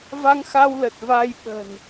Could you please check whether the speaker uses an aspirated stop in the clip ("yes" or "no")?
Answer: no